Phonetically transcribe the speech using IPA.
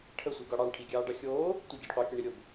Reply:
ʈʰə sʷiɡɒɽɑɳ ʈʰiɡʲɑːɖɑxʲoː | tʷə ɟiɖqʷɑ kʲɒɳiɾʲob

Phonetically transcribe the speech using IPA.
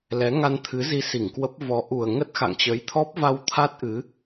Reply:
lɛ˨˦ŋa˧nt̪ʰɨ˨˦ zi˧si˧˩ŋkwə˦˥p̚ vɔ˨˦ʔu˨˩ə̯ ŋə˦˥t̚xa̰˧˨ŋt͡ɕə˨˦j t̪ʰɔ˦˥p̚va˧wt̪ʰa˦˥t̚ʔɨ˨˦

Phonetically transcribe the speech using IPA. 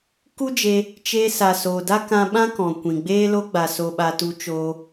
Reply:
ku˦d͡ʒe˧ | t͡ʃe˧ sa˨soː˨da˦kã˧ ɓã˦kɔ̃˨kʷĩ˨ ɡ͡beː˧lo˧ɡ͡ba˨ so˧ɓa˧ tu˧t͡ʃoː˧

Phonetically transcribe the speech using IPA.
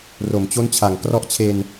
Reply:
ro˨˩mt͡ɕo˦˥nt͡ɕʰa˨˩ŋ krɔ˦˥ʔt͡ɕʰe˧n

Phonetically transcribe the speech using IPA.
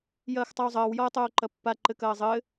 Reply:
jɐːxtˤawzˤɐːw jɔə̯tˤoːǃɐpːa ǃɘkɐːzˤɘː

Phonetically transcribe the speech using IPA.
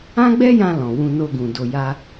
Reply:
ã˦ɡ͡bɛ˦jã˧ lɔ̃˨wũ˧no˧ɡũ˨ do˧ja˦

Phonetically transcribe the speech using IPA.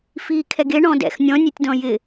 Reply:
fiːkʰɛɡe ɳɔ̃dɛ̰x nʲɔ̃nʲetʲdɔ̃ jɪ

